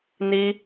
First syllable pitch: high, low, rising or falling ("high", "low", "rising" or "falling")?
high